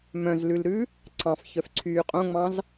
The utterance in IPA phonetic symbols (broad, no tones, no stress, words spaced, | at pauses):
mœ̃zlʉlɾʉ | ǀʰɑ̃fçœfǀʰyː qʼõŋ͡mɑ̃z